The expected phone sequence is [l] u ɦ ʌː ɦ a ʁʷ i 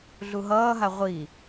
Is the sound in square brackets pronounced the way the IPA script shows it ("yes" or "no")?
no